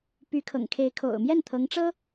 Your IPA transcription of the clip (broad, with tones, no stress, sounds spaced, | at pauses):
p y˧˥ kʰ ɤ̰˨˩ ŋ kʰ e˧˥ ɪ̯ kʰ o̰˨˩ ʊ̯ m j ɛ˥˩ n t̪ʰ ɤ˧˥ ŋ ʈ͡ʂ ɤ˥